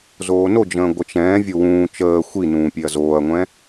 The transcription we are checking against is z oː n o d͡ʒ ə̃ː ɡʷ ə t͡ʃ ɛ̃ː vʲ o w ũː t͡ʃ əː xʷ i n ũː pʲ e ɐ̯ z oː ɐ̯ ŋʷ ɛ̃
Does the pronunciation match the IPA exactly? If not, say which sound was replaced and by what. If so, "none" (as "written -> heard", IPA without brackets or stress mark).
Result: none